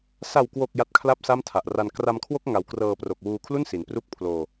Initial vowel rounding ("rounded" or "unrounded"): unrounded